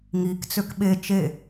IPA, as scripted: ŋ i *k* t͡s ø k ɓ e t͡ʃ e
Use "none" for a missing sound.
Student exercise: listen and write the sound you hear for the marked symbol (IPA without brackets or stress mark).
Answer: k